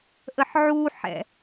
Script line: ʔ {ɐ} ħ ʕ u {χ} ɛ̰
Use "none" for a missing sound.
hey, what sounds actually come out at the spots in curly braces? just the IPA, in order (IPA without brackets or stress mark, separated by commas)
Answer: ə, ħ